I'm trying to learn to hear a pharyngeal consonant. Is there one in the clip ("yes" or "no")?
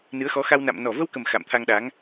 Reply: no